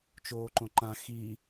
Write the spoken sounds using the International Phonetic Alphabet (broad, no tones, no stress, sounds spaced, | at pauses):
t͡ʃ oː ǃ õ ǃ ã x i